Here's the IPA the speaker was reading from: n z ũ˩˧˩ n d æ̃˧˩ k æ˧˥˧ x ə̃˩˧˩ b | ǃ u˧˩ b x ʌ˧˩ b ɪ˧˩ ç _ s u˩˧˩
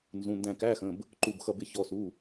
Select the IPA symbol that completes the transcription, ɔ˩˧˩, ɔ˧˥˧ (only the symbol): ɔ˩˧˩